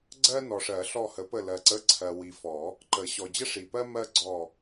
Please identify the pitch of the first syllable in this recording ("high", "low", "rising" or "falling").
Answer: high